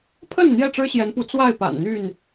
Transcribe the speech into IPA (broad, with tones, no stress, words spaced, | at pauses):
pʰə˥˨n n̪jɛ˥˨ʈ͡ʂɻ̩˦ɕjɛ˨˦npu˨˦ t͡swa˥˨ɪ̯pa̰˨˩nn̪y˥˨n